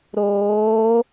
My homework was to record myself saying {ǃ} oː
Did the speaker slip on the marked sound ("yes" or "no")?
yes